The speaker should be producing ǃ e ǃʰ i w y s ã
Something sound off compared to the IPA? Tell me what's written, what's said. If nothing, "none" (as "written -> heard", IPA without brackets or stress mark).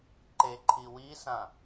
y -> i